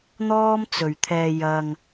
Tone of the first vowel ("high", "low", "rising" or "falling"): high